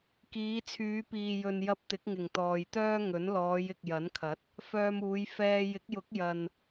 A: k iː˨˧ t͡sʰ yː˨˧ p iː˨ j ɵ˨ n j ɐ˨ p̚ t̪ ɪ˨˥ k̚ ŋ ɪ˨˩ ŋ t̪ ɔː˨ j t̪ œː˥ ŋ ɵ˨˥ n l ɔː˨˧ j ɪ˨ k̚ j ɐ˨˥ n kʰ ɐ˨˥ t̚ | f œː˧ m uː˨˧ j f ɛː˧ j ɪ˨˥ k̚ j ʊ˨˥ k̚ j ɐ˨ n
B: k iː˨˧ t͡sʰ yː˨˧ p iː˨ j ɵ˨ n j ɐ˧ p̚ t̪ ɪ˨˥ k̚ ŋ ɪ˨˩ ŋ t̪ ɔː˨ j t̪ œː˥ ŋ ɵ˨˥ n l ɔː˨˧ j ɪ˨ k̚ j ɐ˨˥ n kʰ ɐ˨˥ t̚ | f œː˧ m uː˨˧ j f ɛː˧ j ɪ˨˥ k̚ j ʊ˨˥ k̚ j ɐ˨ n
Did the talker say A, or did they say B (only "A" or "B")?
B